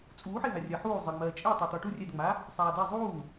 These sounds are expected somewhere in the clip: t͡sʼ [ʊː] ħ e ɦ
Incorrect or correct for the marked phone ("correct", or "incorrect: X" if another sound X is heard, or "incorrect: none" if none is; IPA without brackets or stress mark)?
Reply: incorrect: uː